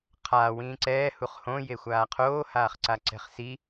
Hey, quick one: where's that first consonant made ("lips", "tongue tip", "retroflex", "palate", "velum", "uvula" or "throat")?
uvula